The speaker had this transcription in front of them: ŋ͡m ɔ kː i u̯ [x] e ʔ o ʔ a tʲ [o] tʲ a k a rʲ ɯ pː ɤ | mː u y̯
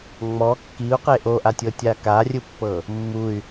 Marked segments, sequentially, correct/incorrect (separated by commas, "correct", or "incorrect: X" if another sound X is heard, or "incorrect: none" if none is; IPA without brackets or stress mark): incorrect: q, incorrect: ɤ